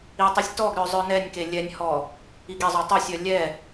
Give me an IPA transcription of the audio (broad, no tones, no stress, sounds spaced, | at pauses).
i tˤ i sʲ t ɔ ɡ ɾ œ zˤ œ n ɛ nʲ k e lʲ ɛ nʲ h ɔ | i ɡ e zˤ œ tˤ o sʲ œ lʲ ɛ